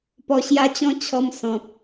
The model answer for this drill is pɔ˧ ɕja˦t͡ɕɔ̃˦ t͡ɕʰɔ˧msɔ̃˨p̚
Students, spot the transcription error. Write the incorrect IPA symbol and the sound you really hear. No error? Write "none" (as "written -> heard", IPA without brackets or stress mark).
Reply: none